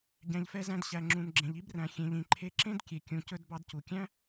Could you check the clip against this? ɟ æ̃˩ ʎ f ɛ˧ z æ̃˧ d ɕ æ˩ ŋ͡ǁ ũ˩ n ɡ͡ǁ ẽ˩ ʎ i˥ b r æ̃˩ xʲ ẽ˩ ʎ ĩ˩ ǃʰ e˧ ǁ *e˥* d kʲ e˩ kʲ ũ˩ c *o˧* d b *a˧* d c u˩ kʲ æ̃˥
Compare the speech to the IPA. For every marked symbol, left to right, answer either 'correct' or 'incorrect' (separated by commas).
incorrect, incorrect, incorrect